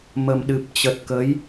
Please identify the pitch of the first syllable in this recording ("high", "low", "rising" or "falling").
low